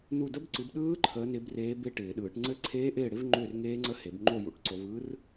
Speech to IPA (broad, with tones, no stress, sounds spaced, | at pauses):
n u˥˨ d ə˦˥ b ǀ ɯ˨˦ b ɗ ɯː˦˥ ǃʰ əː˨˦ n ɪ˨˦ b r eː˨˦ b e˦˥ ʈ ɪː˨˩˦ ɗ ɯː˨˩˦ ʈ ŋ͡ǀ ɘ˥˨ ǀʰ eː˦˥ ʔ ɪː˥˨ ɽ ɪ˦˥ v ŋ͡ǃ ʏː˥˨ r ŋ eː˦˥ ŋ͡ǀ ə˦˥ h e˨˩˦ b ŋ͡ǃ o˥˨ j ṵ˨˦ ʈ ǀ o˨˦ v ɯ˦˥ r